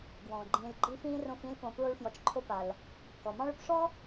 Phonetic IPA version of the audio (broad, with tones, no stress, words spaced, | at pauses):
ɡwɔ̃ː˩ɡ͡ǃĩː˨l ɡ͡ǃi˦fĩː˥rõ˦f ĩ˦lpõ˨ pɹo˥ɭfjɔ˨t͡ʃǃʰo˥ pa˩l | kɔ˩mɑ̃˥ɭʏ˦p ʂɔ˥